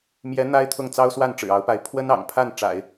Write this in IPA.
m j ɛ˧˥ n̪ a˥ ɪ̯ t̪ʰ ʊ˥˩ ŋ t͡s ɑ˥ ʊ̯ s w a˥˩ n ʈ͡ʂ ɻ̩˨˩ ɑ˧˥ ʊ̯ p a˧˥ ɪ̯ pʰ w ə˥ n ɑ̰˨˩ ŋ pʰ a˥˩ n ʈ͡ʂ a̰˨˩˦ ɪ̯

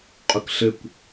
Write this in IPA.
qʼ ʊ k ɬ ɘ kʷ

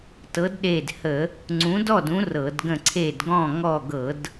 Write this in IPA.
t ɤ˨˦ d ɗ e˧˩ d h ə˧˩˧ | ŋ͡ǀ ũ˨˦ d ɔ˥˨ d ũ˨˦ r ɤ˧˩˧ d ɡ ə̃˥˨ ǀʰ e˥˨ d ɡ ɔ̃˥˨ ŋ ɔ˥˨ ɡ ɤ˧˩˧ d

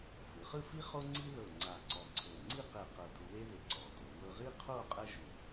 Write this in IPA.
f ɯ˩˧ χ ɯ˥˧ f i˥ χ o˥ ŋ͡ǀ i˥ ð ɤ˧˩ ŋ͡ǀ a˧˩ ǀ ɔ˧ ǀʰ ɤ˧˩ ŋ͡ǀ i˥˧ q e˧˩ q ɤ˧˩ d u˧ w e˥ ð e˧ ǀ ɔ˩˧ d o˩˧ w ɤ˧ ʁ i˥ qʰ o˥˧ qʼ ɛ˥ ʒ u˧˩

